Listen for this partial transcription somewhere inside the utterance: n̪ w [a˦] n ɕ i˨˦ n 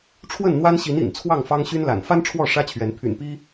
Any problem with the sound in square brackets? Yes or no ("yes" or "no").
no